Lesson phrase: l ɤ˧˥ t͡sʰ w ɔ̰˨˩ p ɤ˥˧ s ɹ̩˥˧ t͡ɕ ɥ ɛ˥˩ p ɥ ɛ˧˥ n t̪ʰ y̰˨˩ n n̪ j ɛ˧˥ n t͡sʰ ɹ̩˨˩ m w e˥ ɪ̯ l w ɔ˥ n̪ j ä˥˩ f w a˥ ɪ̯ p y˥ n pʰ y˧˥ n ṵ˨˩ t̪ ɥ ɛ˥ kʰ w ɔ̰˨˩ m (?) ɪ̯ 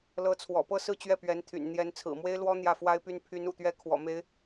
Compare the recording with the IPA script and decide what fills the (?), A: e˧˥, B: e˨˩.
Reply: A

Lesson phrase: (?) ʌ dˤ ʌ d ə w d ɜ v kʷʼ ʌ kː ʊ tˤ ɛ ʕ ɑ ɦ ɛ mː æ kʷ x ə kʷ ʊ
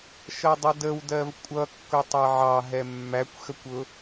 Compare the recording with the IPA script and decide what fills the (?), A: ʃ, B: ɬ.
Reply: A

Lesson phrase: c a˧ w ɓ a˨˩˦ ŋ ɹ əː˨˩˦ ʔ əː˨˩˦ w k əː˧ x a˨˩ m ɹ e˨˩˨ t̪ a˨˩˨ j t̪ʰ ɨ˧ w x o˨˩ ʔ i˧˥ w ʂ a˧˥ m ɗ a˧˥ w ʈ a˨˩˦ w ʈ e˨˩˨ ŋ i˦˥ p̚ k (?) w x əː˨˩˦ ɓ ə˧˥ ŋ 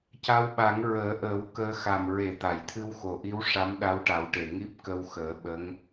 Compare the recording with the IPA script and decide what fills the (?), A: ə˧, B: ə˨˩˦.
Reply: A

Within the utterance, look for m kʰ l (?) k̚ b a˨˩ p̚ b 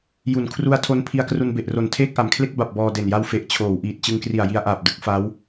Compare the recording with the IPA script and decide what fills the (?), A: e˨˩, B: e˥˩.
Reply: B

